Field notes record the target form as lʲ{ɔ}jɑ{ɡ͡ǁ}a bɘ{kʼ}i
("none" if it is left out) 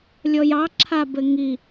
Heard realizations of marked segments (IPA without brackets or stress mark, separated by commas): ɔ, ǁʰ, ŋ